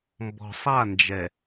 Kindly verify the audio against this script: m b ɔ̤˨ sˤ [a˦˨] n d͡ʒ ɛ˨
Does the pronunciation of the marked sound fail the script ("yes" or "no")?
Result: no